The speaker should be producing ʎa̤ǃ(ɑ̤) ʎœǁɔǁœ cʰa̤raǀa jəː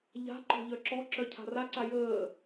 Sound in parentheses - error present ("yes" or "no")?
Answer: yes